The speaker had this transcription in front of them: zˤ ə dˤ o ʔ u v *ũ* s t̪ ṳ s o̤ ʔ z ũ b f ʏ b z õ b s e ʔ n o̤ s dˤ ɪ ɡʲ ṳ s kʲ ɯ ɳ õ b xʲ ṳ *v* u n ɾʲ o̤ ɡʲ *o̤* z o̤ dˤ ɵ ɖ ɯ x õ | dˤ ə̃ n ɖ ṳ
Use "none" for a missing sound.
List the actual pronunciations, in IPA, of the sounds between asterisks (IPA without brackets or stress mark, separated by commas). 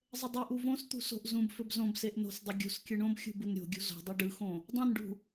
õ, b, ṳ